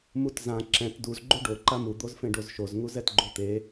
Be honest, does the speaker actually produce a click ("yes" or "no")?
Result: yes